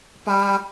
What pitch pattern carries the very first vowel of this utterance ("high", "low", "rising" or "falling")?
high